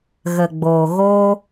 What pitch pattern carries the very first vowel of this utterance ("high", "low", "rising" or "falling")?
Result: low